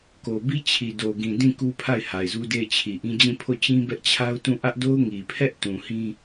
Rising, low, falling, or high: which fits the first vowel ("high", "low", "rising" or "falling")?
low